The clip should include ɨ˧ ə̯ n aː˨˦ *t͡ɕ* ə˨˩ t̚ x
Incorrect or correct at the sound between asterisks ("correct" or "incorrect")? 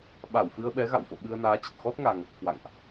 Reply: correct